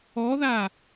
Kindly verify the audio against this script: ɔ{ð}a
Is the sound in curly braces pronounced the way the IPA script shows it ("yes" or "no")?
yes